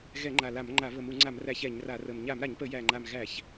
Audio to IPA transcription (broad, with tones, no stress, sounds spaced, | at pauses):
ɣ ɛ˧˩˧ ŋ͡ǃ a˨˩ l a˧˩˧ m ŋ͡ǃ a˧˩˧ β ə˨˩ m u˧˩˧ ŋ͡ǀ a˧˩˧ m r æ˧˩˧ ç ɛ˧˩˧ ɲ r a˧˩˧ r ə˨˩ m ɲ a˧˩˧ m ɾ a˧˩˧ ɲ p ə˧˩˧ j æ˨˩ ŋ͡ǃ a˨˩ m ɣ æ˧˩˧ ç